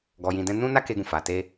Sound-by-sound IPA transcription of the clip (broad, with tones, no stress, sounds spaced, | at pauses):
ɡ ɔ˧ j ĩ˧ d ɛ̃˦ n ũ˦ n a˦ k e˧ ɡ ũ˨ f a˨ t e˧